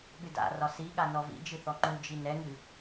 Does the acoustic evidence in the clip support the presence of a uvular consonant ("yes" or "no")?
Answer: no